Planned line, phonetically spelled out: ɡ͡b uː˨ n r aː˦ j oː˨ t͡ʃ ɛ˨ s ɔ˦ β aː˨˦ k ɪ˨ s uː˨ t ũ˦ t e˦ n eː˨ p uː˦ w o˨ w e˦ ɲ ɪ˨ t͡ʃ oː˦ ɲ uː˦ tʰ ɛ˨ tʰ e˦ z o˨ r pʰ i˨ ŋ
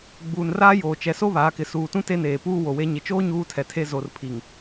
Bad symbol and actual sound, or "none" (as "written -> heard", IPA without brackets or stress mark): ɔ˦ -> o˦